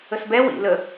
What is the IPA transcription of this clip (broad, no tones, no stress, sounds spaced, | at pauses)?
ə s b ɛ w ḭ l ə